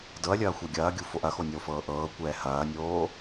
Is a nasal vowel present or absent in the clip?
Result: absent